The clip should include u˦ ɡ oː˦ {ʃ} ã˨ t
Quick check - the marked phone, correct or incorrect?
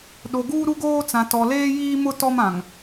incorrect